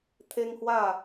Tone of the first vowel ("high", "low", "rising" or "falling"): high